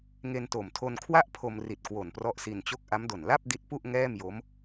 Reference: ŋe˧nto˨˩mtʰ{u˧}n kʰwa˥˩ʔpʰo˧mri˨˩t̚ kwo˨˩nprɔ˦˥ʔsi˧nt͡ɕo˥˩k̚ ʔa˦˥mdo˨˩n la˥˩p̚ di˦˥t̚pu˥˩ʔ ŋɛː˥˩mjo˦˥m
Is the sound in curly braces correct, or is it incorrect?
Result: incorrect